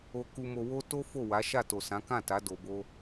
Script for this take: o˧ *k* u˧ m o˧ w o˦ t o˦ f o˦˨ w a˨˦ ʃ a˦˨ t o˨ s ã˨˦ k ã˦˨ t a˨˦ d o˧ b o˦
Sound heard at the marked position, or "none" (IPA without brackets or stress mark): k